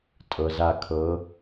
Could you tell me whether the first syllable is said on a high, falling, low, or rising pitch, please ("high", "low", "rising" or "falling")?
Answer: low